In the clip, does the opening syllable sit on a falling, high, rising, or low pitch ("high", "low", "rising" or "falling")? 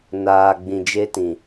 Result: low